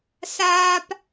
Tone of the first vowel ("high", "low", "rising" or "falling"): high